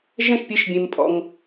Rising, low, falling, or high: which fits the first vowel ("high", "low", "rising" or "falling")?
high